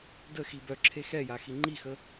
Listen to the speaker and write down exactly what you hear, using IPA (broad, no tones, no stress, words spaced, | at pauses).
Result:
də xibœ ǁʰexɛjaxi ŋ͡ǃixə